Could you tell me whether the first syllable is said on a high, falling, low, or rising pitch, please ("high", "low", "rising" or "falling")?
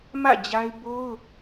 falling